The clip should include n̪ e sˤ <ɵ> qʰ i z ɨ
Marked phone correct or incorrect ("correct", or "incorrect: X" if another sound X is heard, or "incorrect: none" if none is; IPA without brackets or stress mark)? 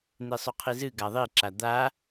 correct